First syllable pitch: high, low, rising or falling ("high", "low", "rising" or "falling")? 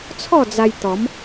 falling